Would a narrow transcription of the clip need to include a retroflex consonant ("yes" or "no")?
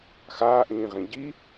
no